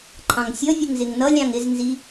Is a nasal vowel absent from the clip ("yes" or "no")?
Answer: no